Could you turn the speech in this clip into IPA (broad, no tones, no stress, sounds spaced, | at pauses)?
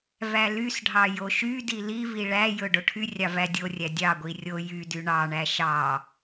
v æ l y s ɖʱ ɑ j o ʃ y d i l i v i ɭ æ j ɵ ɖ o ʈʰ y rʲ ɑ v æ dʲ o rʲ æ dʲ ɑ ɡʷ i rʲ o j y d y ɳ ɑ ɳ æ ʃ ɑ